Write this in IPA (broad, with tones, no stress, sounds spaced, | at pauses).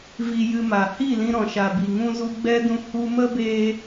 v i˧ j ɨ˧ m a˨ h i˦˨ l ĩ˧ ɾ ɔ̃˨ ʃ a˨ b i˨ ŋ ũ˧ z u˧ ɡ͡b ɛ˦ d ũ˧ h u˧ m ə˦ b eː˧